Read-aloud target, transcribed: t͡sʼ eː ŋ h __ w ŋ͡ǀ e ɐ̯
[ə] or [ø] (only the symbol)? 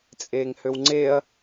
ø